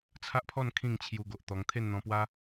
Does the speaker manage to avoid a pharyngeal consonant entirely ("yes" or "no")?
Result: yes